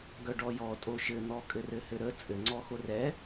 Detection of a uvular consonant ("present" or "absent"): absent